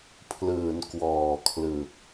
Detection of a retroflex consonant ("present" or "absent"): absent